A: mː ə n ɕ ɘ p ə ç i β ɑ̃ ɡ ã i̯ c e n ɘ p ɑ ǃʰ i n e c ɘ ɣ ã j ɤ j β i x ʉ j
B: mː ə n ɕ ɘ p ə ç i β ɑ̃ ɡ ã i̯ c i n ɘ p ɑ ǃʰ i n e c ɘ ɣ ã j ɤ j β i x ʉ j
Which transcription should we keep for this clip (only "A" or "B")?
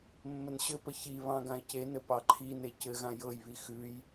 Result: A